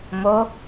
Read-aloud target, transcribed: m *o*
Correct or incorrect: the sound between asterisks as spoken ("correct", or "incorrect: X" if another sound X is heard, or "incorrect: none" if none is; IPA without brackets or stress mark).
correct